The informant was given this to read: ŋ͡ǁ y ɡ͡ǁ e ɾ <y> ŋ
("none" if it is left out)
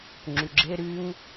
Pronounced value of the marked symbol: y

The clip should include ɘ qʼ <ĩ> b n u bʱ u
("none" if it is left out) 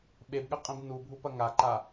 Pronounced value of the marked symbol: ĩ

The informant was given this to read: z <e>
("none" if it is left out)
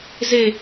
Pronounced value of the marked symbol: e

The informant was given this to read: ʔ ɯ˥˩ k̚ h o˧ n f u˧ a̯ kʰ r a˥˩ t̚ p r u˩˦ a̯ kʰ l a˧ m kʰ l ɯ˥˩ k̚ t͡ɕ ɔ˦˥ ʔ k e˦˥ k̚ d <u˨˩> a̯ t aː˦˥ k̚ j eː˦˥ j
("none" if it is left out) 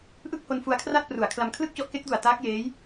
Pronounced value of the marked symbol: u˨˩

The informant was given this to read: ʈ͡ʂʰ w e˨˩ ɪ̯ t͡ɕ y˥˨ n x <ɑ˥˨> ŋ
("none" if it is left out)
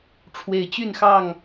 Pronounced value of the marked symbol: ɑ˥˨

